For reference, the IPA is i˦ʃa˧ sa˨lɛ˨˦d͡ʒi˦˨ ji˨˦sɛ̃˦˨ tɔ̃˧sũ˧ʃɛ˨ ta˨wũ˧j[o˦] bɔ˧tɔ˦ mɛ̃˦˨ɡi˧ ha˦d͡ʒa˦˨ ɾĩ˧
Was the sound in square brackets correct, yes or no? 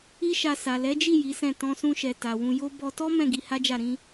yes